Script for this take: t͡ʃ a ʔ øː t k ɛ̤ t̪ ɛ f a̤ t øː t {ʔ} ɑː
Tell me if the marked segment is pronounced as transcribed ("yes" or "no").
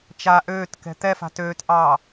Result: yes